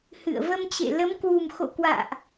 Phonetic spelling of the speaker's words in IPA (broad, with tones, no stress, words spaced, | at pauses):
hɨ̰˧˨ə̯ və˧mt͡ɕḛ˧˨ lə˨˦mkwu˨˩mxo̰˧˨kwa̰ː˧˨ʔ